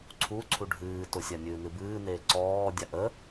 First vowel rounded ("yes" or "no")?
yes